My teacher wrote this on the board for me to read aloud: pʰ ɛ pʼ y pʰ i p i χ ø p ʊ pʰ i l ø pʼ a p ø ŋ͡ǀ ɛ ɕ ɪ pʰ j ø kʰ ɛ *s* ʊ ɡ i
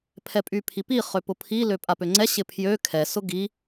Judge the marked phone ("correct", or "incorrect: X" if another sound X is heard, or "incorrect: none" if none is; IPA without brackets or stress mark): correct